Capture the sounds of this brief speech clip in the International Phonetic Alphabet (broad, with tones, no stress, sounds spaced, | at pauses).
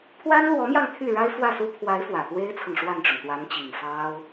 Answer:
pʰ w a˥ n l w ɔ˧˥ m j ɑ˧ ŋ t̪ʰ y˥˩ ɻ a˥ ɪ̯ f w ä˥˩ s u˥ pʰ w a˧˥ ɪ̯ f w ä˨˩ t̪ w e˥ ɪ̯ t͡sʰ ɤ˨ ŋ ʂ w a˥˩ n ʈ͡ʂ ʊ˩ ŋ t̪ w a˧˥ n t͡ɕ i˨˩ ŋ f ɑ˥ ʊ̯